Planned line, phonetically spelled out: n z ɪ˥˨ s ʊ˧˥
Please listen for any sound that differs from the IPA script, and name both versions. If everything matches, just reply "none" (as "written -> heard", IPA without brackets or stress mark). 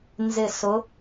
none